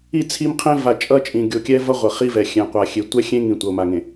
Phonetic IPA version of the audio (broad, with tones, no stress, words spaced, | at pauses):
i˦˨t͡sʰi˦mqʰẽ˦ va˨t͡ʃʼʌ˦t͡ʃʼĩ˨ ɡʲo˨kʲɛ˦vʌ˦ ʁʷʌ˨χi˦vɛ˨ xʲɛ̃˨qʷa˨ xʲe˨tʷɛ˦ xʲẽ˦ŋĩ˨ tʷʌ˨o̯ma˨ŋẽ˨